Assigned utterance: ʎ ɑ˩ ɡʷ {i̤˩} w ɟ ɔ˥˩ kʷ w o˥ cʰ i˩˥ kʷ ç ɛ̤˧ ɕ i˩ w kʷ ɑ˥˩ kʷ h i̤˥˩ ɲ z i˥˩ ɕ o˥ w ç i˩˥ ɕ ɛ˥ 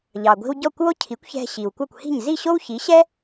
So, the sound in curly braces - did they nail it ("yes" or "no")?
no